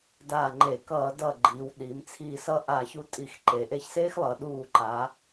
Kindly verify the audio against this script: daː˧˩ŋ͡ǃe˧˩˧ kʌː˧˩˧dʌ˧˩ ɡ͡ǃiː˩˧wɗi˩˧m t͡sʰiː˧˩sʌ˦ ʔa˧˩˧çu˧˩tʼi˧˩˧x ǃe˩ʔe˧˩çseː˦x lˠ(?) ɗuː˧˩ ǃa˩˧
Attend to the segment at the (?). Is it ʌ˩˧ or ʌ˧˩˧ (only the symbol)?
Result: ʌ˩˧